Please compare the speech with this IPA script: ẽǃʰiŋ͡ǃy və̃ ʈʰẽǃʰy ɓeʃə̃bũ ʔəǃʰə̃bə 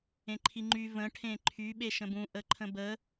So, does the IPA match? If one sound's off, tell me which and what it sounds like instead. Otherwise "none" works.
none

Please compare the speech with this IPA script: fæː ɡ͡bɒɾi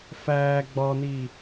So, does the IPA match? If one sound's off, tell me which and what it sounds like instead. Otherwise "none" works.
ɾ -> n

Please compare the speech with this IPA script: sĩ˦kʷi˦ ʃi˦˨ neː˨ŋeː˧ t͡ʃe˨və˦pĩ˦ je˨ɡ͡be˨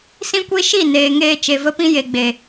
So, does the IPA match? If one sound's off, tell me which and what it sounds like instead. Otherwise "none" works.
none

